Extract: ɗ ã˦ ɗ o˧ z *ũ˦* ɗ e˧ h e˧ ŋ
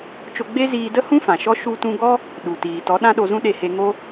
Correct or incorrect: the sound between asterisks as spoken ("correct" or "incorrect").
correct